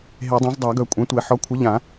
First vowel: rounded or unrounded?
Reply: unrounded